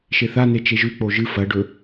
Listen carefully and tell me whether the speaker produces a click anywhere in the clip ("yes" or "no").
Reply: no